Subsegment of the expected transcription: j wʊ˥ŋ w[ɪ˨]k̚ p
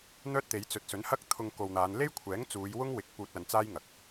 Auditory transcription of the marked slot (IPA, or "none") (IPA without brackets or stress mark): ɪ˨